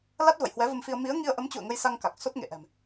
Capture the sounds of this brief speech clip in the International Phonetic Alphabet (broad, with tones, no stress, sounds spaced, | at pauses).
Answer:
l a˦˥ t̚ v ə̰˧˨ j h w ɛ˨˦ v ə˧ m f i˧ ə̯ m i˨˦ ə̯ ŋ i˧ ə̯ ʔ ə˨˦ m t͡ɕ ṵ˧˨ ə̯ ŋ ə˧ j s a˧ ŋ k a˨˩ k̚ s o˦˥ t̚ ŋ ḛ˧˨ ʔ ɛ̤˨˩ m